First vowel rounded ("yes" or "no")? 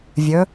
yes